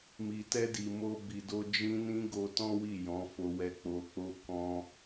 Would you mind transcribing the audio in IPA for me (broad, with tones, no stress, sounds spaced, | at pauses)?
m i˨ t ɛ˧ d i˨ m o˧ b i˨ d o˧ d͡ʒ ĩ˧ n ĩ˧ ɡ o˧ t ɔ̃˦ w i˦˨ j ɔ̃˨˦ f o˧ w ɛ˧ k͡p o˧ k͡p o˦ k ɔ̃˦